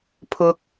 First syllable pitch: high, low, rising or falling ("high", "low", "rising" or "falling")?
high